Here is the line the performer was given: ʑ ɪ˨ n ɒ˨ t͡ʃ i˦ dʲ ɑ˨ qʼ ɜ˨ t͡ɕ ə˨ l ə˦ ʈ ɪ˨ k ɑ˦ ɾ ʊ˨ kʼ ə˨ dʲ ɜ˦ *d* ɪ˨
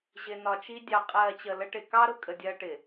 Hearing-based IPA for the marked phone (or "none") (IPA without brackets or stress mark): ʈ